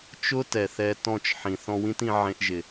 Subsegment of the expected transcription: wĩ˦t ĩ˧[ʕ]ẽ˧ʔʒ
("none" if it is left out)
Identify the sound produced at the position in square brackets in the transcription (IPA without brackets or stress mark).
ʕ